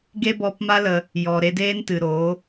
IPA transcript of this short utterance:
ɡ e˦ b ɔ˧ p m a˦ l ə˧ | j ɔ˨ ɾ e˧ d eː˦ n t ɨ˨ ɾ oː˨˦

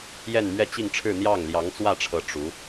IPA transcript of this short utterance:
j ɛ˥˧ n m ɥ ɛ˥˧ t͡ɕ i˥˧ ŋ ʈ͡ʂʰ ɻ̩˥˧ n̪ j ɑ˥˩ ŋ l j ɑ˧˥ ŋ t͡s w ä˥˩ ʈ͡ʂʰ ɤ˧˥ ʈ͡ʂ u˧˥

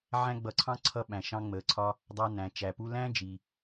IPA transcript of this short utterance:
ʕ æ̃˥ ɡ͡b ʌ˧ ǀʰ ɑ̃˥ ǀʰ ʌ˧ ɓ æ̃˩ ʃ ɑ̃˧ ŋ͡m əː˩ ǀʰ ɒ˧ | dˤ ɑ˧ n æ̃˩ t͡ʃ æ˩ p u˧ l æ̃˥ d͡ʒ i˩

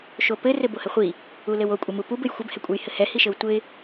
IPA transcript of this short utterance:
ʃ o p ɘ r ɘ b o h ɘ χʷ i | u l ɘ w o kʷʼ ɘ m u p u b ɘ j xʷ ɘ b h ɛ kʷʼ ɛ j h ɘ h ɛ h i ʃ ɘ w tʷ ɘ ɪ̯

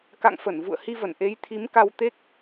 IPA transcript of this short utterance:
k a̰˧˨ ŋ f ə˧˩ n v ṵ˧˨ ə̯ h i˧ v ə˧˩ n ʔ e˨˦ j t̪ʰ i˨˦ m k a˧ w t̪ e˦˥ k̚

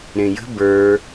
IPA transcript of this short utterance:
ɾ ẽ j ə̤ b ə˞

